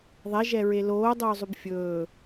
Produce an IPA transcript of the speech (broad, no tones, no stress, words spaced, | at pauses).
ðˤɛʒɛɹe loːdˤɵːzˤʉb fʲɵː